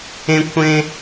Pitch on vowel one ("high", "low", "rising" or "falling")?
high